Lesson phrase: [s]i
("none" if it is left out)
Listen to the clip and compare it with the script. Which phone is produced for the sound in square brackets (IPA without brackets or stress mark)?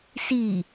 s